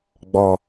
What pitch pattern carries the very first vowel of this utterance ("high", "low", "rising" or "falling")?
low